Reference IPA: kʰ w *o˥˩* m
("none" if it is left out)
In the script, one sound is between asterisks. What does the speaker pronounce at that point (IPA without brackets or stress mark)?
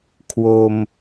o˧